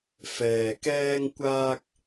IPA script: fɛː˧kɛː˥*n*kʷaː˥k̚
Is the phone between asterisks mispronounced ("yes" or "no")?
yes